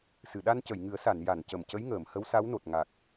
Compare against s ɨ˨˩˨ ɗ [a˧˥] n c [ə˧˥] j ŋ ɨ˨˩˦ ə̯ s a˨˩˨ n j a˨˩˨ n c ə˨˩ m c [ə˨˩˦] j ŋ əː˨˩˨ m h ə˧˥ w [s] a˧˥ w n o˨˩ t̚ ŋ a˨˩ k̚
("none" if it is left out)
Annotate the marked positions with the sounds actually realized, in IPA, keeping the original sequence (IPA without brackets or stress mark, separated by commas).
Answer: a˧, ə˨˩˨, ə˧˥, s